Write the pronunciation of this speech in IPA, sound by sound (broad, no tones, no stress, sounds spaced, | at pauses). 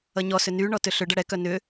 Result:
ʌ ɲ ɔ s ʏ n y ɳ ɔ t ʏ ɬ ʏ ɖ ʌ ɽ ɛ k œ n ʏ